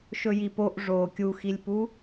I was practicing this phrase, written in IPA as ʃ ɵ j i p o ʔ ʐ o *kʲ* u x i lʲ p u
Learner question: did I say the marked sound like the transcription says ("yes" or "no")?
yes